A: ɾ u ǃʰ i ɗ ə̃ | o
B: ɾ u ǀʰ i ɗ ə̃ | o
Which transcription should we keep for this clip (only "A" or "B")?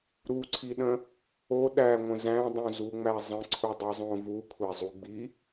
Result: B